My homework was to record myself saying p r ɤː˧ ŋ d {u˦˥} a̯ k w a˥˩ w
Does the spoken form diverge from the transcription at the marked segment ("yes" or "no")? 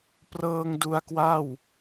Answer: yes